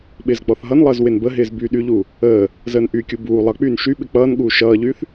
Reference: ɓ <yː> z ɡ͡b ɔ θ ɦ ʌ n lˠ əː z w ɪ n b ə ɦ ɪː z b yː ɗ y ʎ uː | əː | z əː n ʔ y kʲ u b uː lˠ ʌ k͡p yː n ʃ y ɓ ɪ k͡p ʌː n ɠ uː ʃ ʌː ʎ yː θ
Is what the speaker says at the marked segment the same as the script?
no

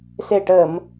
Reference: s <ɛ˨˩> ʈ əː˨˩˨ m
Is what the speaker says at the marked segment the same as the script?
no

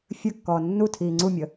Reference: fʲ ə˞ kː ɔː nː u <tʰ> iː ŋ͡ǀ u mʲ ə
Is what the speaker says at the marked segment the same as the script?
yes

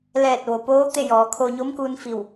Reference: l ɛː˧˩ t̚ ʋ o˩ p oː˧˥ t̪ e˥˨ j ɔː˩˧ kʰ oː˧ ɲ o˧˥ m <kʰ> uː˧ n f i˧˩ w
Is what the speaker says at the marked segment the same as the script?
no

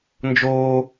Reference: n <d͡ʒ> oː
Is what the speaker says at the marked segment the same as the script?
yes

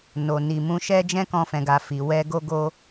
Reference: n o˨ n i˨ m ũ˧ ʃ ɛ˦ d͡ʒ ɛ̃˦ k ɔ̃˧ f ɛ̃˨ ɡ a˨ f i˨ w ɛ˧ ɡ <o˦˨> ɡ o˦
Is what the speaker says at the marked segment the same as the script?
no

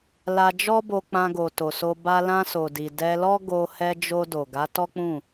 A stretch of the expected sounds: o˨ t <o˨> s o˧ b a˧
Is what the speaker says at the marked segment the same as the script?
yes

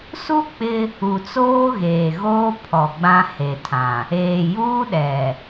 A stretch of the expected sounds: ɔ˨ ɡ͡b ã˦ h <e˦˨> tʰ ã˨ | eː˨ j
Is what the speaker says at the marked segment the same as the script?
no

